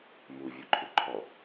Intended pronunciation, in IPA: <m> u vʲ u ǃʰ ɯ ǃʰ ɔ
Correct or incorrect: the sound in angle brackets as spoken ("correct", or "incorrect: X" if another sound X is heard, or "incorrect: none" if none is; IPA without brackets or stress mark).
correct